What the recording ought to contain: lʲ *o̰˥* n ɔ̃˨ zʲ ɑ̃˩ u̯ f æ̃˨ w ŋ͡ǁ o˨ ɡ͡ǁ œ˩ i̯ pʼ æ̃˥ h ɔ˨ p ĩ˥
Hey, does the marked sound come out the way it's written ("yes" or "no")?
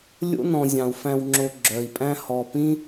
yes